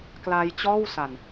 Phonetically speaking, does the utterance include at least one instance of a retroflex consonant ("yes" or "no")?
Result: no